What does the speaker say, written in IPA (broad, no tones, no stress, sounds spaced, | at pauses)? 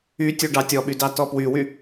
y tʲ u ɖ ɑ tʲ ɔ ɓ y d ɑ t ɔ p w y w y